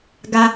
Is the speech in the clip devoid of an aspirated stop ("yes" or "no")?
yes